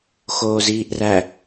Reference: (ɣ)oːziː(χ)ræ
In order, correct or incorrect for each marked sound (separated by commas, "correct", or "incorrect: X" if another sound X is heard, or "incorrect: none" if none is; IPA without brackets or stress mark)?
incorrect: x, incorrect: ʔ